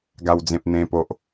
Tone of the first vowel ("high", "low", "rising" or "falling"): low